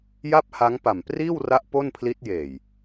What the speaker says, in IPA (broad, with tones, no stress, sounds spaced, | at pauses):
j a˥˩ p̚ h a˦˥ ŋ p a˨˩ m p r iː˥˩ w r a˦˥ ʔ p o˥˩ n pʰ l i˦˥ t̚ j eː˨˩ j